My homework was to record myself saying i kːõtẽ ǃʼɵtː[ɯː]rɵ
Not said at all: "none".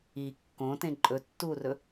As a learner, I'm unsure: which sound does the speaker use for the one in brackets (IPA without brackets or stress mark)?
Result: uː